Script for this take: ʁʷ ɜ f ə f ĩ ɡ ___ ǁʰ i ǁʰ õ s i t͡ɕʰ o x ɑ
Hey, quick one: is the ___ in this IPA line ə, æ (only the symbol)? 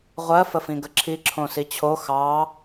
ə